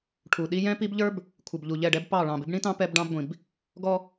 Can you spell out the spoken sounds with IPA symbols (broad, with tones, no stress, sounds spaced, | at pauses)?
ʈʰ u˨ ɗ i˦ j ɛ̃˦ p i˦ b ʎ ə˞˦ b | kʷʰ ɪ˨ b ʎ u˨ ʎ ɛ˦˨ ɖ ɛ˦ b p ɑ˦˨ ɭ ɑ̃˨ b ɪ˦ b ɳ ĩ˦ t ɑ̃˦ p ɛ˦ b ɖ ɑ̃˦ b ɡʷ ĩ˨ b | ɡ ɔ˦